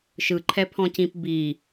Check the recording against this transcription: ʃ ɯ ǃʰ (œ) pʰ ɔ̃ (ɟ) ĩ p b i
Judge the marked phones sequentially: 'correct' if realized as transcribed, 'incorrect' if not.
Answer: incorrect, incorrect

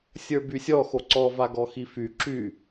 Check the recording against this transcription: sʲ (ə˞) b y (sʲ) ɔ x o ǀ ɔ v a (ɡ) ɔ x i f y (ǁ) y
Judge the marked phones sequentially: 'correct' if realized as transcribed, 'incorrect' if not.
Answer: correct, correct, correct, correct

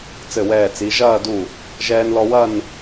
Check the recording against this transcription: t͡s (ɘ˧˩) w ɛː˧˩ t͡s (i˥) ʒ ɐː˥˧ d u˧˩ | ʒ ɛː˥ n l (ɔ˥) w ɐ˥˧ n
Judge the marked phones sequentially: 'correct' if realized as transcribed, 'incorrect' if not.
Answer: correct, incorrect, correct

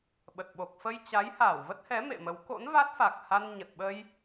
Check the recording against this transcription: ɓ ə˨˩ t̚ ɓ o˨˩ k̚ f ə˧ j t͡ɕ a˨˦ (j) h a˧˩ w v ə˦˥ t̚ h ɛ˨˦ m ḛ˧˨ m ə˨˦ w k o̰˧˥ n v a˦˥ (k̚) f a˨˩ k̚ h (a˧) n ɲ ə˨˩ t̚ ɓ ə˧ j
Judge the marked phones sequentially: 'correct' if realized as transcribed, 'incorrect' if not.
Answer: correct, incorrect, correct

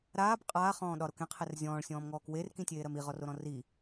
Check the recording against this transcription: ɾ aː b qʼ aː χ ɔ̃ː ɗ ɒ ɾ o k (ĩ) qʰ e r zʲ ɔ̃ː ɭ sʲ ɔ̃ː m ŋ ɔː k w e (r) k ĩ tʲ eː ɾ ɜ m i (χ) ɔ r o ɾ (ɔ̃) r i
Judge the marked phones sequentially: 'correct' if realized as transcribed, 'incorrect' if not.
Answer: incorrect, correct, incorrect, correct

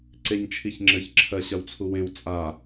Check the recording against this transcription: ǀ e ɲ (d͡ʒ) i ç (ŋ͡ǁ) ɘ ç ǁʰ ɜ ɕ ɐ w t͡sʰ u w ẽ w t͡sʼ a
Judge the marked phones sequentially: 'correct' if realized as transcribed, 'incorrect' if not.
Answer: incorrect, correct

